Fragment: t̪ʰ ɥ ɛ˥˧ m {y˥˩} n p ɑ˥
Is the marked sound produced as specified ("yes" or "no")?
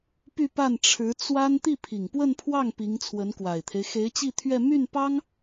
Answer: yes